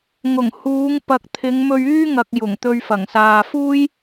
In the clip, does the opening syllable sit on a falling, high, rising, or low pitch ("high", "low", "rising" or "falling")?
low